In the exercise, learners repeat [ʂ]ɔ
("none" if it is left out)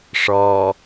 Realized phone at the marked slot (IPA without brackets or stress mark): ʂ